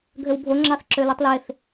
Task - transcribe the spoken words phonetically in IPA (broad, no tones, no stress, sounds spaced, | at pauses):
ɡʱ ø w bʱ o ŋ͡ǁ ɑ θ ǁ ø l ɯ tˤ l e θ